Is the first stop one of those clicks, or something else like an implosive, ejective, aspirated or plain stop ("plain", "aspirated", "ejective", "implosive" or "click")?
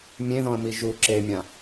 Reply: click